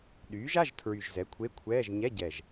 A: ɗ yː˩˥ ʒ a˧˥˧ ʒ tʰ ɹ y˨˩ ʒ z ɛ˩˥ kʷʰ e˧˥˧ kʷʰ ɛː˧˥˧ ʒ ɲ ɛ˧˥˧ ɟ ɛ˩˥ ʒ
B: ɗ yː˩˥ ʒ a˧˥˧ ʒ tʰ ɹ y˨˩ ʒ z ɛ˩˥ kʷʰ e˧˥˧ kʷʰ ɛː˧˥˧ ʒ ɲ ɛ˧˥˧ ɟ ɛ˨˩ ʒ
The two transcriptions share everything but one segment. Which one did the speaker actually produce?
B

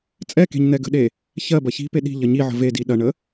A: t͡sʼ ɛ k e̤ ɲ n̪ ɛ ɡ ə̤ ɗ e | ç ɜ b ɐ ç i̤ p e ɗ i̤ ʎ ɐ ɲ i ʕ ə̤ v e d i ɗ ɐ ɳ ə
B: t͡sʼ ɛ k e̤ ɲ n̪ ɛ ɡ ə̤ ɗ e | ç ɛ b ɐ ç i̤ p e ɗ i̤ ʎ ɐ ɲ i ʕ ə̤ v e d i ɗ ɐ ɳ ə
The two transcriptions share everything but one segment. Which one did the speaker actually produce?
A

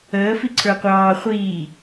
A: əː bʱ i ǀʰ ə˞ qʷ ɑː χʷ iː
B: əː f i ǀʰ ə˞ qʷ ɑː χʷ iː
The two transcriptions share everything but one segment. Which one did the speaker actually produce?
B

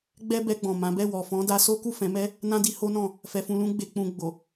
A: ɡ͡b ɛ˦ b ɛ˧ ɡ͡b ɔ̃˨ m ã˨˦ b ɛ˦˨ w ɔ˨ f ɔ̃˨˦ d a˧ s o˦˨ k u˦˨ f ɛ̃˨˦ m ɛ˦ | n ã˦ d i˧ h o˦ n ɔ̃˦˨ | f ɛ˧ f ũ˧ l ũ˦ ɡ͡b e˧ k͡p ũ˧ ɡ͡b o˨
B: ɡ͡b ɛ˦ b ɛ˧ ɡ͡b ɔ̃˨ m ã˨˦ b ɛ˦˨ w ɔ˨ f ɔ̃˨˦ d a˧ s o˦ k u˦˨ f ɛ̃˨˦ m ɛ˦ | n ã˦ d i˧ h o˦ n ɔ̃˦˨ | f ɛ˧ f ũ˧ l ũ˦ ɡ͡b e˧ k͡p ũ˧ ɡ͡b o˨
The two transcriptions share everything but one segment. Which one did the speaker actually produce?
B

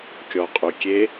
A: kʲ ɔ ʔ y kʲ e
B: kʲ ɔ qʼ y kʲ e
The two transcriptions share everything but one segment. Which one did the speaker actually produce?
B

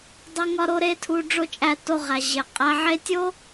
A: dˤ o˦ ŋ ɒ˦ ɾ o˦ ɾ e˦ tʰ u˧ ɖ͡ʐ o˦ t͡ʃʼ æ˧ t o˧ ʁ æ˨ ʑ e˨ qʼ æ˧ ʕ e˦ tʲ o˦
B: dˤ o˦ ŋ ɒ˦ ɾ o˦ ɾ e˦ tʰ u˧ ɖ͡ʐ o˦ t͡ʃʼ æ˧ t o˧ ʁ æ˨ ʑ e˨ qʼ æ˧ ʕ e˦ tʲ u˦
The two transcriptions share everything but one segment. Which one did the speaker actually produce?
A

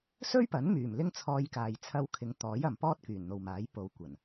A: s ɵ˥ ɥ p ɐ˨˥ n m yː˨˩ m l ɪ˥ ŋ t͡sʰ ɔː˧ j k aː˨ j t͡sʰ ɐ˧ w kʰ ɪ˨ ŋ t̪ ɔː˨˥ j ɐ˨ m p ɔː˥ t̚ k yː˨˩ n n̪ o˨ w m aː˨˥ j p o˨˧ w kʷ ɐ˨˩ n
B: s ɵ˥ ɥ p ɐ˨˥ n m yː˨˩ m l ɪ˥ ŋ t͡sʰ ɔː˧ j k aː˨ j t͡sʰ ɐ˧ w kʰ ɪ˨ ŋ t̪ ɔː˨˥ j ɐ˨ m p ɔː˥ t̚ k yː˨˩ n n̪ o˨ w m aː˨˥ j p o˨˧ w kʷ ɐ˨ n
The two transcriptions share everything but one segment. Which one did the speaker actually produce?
A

